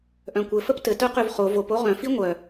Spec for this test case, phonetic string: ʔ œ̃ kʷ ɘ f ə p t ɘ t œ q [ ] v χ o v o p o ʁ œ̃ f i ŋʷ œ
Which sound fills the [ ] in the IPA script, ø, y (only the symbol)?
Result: ø